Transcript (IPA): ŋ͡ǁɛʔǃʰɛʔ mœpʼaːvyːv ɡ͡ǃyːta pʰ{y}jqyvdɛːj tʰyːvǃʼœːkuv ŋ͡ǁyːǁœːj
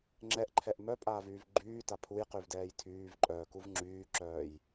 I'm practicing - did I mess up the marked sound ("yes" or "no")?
yes